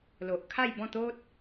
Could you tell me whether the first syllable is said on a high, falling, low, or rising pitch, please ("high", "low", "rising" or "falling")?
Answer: low